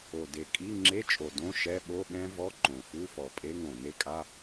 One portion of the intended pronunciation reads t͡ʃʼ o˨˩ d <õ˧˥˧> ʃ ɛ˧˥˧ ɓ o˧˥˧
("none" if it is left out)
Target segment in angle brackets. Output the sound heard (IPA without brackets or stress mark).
õ˧˥˧